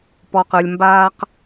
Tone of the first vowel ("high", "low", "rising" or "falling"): low